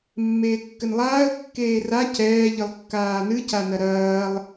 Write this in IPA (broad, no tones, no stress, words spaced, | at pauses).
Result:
mːeːkːɘnlˠaːə̯ kːeːra cɛː ʎɨlˠkːaːnɨ canɐɾɐːlˠ